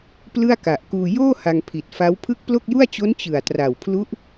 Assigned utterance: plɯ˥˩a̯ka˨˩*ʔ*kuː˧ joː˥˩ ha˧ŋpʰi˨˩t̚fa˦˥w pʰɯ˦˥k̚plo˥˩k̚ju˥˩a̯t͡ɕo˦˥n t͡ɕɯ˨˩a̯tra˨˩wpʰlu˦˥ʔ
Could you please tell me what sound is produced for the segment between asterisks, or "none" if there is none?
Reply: ʔ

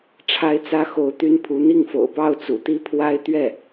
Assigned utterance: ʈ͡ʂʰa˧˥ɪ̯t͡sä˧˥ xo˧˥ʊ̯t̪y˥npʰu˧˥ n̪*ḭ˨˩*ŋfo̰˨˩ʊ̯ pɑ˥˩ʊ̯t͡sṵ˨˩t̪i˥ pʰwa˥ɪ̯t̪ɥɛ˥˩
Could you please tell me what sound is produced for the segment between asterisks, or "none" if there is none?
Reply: i˥˩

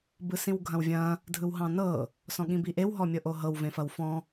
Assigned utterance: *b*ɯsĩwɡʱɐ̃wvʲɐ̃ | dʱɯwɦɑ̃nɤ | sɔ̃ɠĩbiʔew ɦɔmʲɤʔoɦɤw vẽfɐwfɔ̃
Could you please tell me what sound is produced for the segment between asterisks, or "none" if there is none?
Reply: b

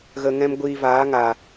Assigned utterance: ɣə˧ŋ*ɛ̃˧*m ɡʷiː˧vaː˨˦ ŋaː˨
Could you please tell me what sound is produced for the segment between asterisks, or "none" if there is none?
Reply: ɛ̃˦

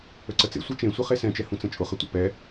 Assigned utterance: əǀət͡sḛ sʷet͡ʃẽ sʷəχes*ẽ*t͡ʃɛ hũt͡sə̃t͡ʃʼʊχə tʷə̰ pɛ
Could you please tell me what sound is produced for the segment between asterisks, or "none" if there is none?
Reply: ɛ̃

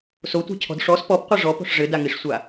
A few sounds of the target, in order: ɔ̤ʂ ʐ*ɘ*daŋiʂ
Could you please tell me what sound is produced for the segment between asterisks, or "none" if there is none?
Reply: ɘ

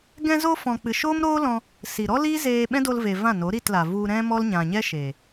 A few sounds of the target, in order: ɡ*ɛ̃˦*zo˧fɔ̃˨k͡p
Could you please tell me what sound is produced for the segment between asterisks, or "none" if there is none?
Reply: ɛ̃˧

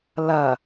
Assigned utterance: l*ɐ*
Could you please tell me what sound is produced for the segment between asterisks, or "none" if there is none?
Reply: ɐ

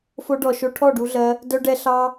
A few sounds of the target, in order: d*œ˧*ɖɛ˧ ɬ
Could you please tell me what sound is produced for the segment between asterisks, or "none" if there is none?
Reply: œ˧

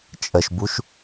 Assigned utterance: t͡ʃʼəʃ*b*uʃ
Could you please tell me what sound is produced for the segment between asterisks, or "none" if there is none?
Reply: b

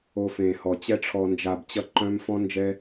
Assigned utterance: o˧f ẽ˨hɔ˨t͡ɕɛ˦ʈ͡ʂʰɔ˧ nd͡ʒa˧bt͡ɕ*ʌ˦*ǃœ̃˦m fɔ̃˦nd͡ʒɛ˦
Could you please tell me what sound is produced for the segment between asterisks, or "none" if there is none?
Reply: ʌ˦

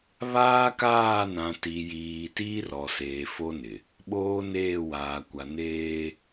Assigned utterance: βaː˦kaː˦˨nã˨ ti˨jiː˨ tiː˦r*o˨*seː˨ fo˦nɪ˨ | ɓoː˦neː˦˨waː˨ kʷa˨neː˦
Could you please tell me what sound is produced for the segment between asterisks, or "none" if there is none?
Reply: ɔ˨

